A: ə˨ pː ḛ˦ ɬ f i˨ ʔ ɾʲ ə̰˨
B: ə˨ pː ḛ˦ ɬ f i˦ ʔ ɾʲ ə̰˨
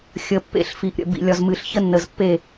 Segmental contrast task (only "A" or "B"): A